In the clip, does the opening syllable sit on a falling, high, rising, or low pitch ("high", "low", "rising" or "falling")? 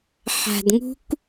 low